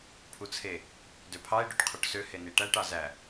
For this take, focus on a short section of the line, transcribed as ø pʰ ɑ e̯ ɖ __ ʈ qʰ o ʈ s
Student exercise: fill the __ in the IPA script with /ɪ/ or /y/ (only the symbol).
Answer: y